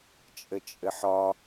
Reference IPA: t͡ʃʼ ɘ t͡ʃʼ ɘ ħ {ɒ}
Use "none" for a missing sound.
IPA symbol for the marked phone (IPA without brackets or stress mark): ɒ